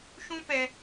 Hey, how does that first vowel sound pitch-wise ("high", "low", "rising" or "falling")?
high